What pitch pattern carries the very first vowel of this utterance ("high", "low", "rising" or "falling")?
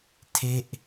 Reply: falling